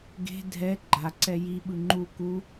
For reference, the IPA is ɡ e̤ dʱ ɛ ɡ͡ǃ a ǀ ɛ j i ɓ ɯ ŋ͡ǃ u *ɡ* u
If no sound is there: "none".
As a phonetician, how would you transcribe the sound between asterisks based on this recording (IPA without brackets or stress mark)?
k